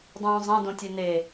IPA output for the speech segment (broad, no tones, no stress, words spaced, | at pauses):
dˤũːzˤɛ̃ dõtʲene